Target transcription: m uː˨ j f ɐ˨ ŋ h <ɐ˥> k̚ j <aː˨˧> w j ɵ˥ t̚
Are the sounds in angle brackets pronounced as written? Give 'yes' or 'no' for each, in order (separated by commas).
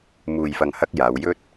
no, yes